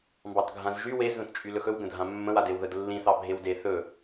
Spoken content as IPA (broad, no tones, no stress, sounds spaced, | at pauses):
m b ɑ t ɡʱ ã z ʒ y w e z ð ə̃ t t͡ʃʼ y l ɵ x ɵ w ɡ ə̃ dʱ ã mː ə̃ w a d e w ð ə d lː ĩ θ ɑ bʱ e w d e θ ɵ